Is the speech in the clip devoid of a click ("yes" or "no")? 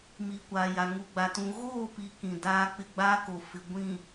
yes